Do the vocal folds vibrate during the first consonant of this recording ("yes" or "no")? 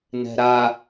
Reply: yes